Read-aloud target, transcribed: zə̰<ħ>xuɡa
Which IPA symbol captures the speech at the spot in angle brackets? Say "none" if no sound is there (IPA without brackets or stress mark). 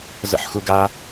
ħ